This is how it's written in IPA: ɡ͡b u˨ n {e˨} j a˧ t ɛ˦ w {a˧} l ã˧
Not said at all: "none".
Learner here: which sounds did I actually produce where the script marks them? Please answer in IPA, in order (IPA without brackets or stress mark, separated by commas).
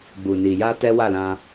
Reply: i˨, a˦˨